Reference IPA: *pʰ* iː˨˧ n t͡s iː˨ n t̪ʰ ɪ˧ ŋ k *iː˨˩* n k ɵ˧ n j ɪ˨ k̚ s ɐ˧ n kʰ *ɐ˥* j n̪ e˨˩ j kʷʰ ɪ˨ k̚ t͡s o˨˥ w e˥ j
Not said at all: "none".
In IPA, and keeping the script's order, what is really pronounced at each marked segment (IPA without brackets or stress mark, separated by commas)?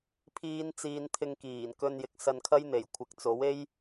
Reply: pʰ, iː˨˩, ɐ˥